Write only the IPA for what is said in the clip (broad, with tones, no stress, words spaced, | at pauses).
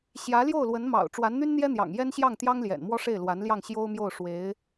ɕjä˧˥ljo˥˩ʊ̯lwə˧˥nmɑ̰˨˩ʊ̯ ʈ͡ʂwa˧˥nn̪y˥nn̪jɛ˥n̪jɑ̰˨˩ŋ jɛ˥nɕjɑ˥˩ŋt̪jɑ˥ŋljɛ̰˨˩n mwɔ˥ʂe˥˩ɪ̯lwa˧˥nljɑ˥˩ŋ ɕjo˥ʊ̯mjo˥˩ʊ̯ʂwe˧˥ɪ̯